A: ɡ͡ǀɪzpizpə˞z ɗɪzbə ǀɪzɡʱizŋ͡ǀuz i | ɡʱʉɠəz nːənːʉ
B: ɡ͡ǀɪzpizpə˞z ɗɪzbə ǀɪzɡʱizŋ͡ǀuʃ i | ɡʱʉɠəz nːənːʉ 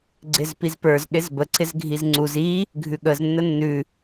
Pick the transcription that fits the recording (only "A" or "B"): A